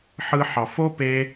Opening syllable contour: high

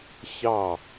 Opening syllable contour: falling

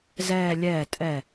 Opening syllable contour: falling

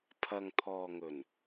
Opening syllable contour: low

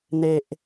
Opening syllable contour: low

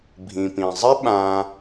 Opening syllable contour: low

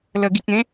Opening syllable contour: low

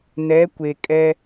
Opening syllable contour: rising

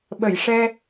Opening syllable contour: low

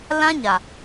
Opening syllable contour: high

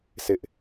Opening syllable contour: high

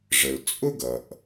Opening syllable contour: low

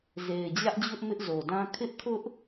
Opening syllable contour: low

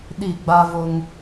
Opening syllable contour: falling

